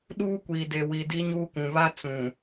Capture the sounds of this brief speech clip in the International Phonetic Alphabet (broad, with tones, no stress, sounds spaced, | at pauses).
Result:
ɗ uː˦ kʷ iː˨ d e˨ w i˨ d i˦ ɲ uː˦ k ũ˨ β a˦ t͡s ũ˨